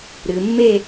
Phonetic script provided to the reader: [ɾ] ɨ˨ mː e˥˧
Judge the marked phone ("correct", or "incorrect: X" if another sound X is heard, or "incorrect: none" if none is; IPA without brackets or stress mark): correct